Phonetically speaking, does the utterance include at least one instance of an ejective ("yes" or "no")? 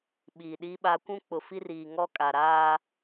yes